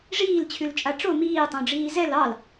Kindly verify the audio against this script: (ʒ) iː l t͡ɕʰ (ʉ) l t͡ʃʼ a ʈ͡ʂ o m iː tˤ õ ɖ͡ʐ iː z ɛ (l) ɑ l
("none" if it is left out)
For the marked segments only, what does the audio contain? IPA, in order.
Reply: ʐ, ʉ, l

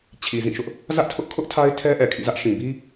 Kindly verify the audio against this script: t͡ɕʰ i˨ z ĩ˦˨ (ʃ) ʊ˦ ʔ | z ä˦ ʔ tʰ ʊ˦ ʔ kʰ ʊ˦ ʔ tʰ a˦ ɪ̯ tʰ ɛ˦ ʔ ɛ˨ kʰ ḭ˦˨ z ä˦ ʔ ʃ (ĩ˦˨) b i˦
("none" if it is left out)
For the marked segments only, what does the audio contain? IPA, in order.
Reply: ʃ, ĩ˨

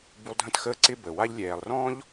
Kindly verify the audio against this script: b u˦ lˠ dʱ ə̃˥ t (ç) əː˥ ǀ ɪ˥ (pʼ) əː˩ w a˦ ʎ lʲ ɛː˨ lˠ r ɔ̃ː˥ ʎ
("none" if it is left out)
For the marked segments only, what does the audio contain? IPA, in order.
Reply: x, b

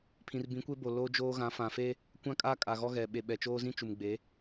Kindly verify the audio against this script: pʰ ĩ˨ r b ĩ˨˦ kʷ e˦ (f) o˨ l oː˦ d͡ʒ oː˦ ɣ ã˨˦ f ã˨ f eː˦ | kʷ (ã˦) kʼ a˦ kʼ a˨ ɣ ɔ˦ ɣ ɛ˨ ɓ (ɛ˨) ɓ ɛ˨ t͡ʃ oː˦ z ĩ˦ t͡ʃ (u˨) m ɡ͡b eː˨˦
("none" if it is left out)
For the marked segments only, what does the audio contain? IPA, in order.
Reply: b, ã˦, e˨, u˨

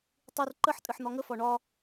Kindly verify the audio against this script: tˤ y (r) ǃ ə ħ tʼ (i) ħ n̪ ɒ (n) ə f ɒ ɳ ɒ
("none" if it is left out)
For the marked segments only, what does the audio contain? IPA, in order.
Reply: r, ɨ, ŋ

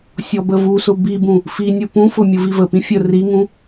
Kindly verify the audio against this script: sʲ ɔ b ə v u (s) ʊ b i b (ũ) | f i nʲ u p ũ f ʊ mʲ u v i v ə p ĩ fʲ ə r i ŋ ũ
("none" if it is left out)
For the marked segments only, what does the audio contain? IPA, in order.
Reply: s, ũ

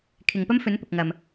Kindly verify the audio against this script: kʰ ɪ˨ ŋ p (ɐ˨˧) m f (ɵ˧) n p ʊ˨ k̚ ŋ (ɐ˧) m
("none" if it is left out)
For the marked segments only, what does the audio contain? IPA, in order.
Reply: ɐ˥, ɵ˨˥, ɐ˨

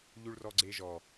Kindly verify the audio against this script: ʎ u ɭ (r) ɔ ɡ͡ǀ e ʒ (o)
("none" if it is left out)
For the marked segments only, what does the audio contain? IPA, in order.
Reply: r, ɔ

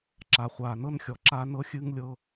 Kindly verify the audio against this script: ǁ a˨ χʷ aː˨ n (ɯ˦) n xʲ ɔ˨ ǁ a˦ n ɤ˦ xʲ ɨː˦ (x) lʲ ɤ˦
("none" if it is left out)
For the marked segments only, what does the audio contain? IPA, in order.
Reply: ɤ˦, ŋ

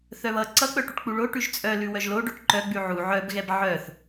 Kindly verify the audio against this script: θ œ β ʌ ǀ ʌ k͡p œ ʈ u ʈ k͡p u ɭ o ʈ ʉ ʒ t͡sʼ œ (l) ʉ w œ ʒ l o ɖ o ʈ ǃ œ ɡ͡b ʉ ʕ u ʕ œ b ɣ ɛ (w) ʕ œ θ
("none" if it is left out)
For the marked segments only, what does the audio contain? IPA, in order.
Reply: l, b

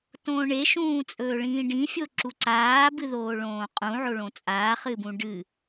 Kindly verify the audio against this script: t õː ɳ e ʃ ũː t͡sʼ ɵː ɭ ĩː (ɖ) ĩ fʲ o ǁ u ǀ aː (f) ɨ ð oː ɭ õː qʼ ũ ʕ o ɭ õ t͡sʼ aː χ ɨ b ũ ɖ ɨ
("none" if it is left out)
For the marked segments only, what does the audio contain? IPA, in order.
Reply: ɖ, b

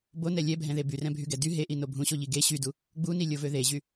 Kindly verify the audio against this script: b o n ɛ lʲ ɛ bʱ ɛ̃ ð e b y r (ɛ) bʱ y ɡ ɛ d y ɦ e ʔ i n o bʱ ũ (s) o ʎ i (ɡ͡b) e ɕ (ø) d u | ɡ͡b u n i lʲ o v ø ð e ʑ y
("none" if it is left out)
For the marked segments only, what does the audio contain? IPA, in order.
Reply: ɛ̃, ɕ, ɡ, y

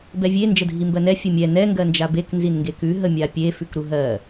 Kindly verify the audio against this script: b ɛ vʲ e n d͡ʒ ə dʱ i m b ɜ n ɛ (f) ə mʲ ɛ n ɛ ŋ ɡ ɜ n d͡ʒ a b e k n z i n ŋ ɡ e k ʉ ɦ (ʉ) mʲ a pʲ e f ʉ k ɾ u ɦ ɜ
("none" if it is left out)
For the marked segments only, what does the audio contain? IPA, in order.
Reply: fʲ, ə

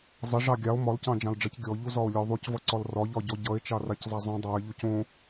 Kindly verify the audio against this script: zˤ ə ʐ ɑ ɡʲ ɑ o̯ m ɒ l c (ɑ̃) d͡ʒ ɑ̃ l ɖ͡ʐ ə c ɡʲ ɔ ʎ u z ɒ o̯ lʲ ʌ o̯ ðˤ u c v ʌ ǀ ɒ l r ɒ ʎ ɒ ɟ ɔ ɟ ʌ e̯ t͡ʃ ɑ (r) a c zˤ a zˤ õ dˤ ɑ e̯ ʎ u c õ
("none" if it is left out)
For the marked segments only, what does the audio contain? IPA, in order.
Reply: ɑ̃, r

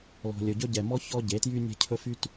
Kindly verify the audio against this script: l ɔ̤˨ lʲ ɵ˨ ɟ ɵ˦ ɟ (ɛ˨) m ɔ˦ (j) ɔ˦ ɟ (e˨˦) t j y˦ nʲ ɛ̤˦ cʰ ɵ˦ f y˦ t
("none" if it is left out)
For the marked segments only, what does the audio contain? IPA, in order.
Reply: ɛ˨, ç, e˨˦

